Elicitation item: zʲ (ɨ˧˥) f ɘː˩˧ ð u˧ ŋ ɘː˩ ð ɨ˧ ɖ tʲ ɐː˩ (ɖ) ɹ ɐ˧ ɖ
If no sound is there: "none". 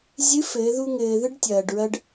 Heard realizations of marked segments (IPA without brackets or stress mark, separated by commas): ɨ˧˥, ɖ